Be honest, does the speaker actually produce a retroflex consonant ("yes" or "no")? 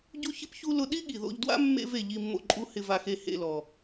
no